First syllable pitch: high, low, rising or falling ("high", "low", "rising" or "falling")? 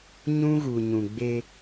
high